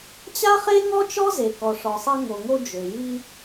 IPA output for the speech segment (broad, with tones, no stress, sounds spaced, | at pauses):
t͡ɕ a˥ χ e˥ ŋ ɔ˥ t͡ʃ ɔ˥ z e˩ k ɔ˩ ʂ ɔ˩ sˤ e˧ ŋ o˩ ŋ o˧ d͡ʒ ø˩ j i˧